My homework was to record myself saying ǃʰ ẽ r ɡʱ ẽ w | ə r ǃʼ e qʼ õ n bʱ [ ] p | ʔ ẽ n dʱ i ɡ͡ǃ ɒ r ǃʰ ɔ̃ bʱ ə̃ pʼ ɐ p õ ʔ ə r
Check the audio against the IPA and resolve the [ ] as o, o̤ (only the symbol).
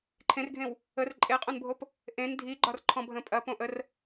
o